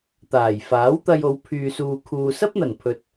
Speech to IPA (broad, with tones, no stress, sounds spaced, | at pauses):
t̪ aː˨˩ j f aː˨˥ w t̪ ɐ˧ j o˨˧ w pʰ yː˨ s uː˨ kʰ uː˨ s ɐ˥ p̚ n̪ ɐ˨˩ n pʰ ɵ˨ t̚